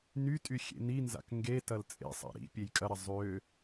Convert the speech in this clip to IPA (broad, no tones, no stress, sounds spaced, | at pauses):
n y tʼ y xʲ ḛ n i n z a̰ k ŋ ɡ e t ɐ l t͡sʼ ḛ sˤ a̰ ɾ ḭ pʲ e j kʼ ɐ ɾ ɐ zˤ ø